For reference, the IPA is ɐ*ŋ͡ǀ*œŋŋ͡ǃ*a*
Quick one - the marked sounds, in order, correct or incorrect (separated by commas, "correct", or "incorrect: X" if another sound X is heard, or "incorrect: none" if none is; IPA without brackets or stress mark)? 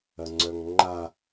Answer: correct, correct